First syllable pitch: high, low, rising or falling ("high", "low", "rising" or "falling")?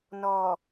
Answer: low